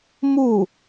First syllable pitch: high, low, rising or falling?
falling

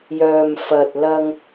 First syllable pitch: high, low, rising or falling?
low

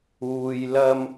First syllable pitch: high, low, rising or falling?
low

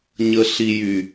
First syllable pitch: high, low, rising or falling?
low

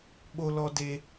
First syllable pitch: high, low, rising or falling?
high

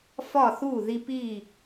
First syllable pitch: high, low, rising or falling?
falling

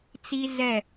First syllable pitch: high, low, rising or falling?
high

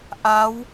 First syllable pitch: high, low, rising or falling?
rising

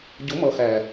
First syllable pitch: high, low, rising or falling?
rising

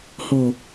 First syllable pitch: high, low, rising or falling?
low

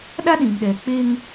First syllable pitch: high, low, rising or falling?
high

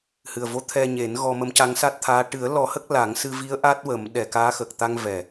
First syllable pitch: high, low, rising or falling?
low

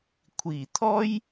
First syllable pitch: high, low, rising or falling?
low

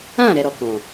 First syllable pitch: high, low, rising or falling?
falling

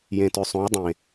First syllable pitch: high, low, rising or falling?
low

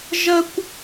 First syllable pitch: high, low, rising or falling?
high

